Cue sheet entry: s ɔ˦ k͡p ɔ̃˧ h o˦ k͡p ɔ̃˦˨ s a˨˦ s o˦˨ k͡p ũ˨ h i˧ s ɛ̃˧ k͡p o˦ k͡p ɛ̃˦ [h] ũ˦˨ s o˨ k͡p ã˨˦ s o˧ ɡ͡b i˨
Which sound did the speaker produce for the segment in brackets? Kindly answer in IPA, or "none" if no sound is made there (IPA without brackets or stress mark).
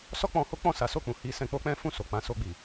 f